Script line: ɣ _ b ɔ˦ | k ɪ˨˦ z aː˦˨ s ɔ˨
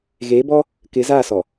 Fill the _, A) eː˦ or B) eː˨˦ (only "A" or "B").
B